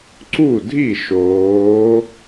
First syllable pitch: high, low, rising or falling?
falling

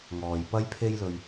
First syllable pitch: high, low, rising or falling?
low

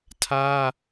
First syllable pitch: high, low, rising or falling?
high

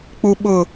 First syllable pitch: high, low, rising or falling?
low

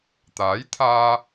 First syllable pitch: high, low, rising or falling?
rising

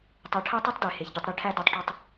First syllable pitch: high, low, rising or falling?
rising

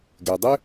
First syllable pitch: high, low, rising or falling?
low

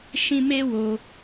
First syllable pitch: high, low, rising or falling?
high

